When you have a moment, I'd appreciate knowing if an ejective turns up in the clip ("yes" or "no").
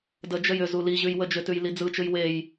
no